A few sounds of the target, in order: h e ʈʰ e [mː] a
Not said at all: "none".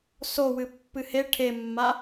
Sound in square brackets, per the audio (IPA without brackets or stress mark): mː